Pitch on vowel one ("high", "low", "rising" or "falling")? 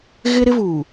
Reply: high